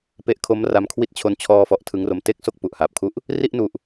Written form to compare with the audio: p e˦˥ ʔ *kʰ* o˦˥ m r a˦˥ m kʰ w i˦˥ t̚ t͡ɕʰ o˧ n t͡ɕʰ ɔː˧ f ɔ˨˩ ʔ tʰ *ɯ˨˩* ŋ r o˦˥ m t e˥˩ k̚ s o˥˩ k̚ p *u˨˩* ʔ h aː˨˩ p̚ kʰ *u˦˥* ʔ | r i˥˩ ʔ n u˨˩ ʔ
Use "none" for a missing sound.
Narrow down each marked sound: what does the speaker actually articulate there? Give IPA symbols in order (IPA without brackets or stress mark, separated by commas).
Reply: kʰ, ɯ˦˥, u˨˩, u˥˩